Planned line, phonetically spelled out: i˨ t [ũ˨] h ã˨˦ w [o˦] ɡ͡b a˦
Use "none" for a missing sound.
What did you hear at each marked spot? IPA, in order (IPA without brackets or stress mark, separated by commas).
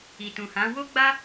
ũ˨, o˦